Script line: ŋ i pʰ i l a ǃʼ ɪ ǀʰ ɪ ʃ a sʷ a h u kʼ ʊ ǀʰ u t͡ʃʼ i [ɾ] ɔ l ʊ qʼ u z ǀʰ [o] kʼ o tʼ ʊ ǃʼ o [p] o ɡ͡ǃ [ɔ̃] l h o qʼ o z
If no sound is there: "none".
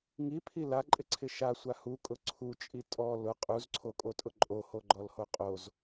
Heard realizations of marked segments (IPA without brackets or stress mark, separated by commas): tʼ, o, h, ɔ